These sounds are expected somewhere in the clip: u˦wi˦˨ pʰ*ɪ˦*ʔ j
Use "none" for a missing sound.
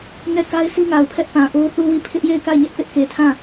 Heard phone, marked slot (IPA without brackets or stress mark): ɪ˦